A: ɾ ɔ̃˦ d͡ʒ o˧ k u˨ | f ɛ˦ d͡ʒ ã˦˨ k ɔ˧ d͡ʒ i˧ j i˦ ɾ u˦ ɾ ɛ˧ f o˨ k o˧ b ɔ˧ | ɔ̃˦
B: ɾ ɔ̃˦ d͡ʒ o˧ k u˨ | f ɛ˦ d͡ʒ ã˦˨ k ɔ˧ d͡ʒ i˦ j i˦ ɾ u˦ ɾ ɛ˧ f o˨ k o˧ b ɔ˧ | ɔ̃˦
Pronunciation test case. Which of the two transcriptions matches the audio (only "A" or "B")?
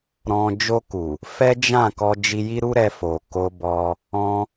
A